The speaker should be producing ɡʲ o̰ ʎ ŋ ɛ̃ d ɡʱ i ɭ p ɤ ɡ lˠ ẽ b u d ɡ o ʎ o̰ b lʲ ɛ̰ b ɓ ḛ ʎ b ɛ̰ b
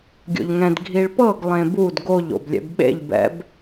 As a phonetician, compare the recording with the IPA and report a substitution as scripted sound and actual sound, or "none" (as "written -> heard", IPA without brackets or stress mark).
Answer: none